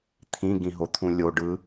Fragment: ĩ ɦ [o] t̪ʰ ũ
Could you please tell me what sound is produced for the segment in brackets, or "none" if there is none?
o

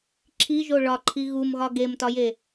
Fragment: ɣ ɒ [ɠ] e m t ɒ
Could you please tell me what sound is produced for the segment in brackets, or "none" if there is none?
ɡ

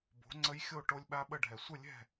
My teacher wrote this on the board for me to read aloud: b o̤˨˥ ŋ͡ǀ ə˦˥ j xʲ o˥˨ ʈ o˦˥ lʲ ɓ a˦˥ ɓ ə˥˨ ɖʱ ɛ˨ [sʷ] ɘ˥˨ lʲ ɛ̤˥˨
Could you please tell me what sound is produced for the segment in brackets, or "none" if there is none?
sʷ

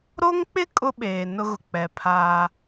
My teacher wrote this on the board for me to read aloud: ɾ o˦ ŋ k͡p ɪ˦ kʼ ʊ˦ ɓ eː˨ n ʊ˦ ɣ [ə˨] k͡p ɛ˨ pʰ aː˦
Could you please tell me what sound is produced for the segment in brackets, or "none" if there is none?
ʊ˨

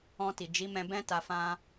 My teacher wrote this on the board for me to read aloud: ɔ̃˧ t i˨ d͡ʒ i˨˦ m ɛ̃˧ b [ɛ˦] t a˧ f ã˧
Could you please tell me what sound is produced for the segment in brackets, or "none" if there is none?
ɛ̃˦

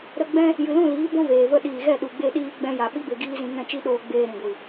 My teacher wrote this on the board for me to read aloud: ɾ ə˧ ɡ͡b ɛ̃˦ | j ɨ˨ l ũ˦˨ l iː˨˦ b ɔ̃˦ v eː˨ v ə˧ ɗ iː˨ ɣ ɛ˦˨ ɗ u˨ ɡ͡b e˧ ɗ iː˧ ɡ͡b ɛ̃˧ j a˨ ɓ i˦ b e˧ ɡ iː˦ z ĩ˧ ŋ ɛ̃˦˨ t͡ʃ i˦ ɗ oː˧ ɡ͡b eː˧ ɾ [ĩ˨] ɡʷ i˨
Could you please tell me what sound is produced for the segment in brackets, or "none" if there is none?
ĩ˨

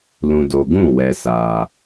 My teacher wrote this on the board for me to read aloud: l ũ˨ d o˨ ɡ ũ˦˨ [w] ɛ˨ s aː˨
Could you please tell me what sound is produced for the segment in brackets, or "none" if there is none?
w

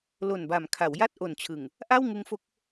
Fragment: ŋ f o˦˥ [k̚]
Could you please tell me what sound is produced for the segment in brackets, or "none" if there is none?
k̚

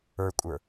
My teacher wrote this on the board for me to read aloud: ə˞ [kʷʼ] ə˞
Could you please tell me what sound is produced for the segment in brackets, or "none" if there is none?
kʷʼ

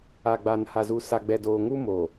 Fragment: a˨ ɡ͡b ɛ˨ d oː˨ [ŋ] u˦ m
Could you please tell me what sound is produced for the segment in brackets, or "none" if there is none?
ŋ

